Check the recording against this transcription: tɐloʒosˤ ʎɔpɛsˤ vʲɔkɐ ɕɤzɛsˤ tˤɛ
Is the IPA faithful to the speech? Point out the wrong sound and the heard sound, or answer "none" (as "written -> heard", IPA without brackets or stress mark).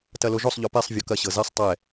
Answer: none